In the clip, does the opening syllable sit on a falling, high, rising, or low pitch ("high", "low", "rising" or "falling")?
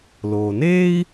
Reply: low